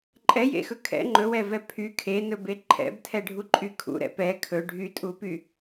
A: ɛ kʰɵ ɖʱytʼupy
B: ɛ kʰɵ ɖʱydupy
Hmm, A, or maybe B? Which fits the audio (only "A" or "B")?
A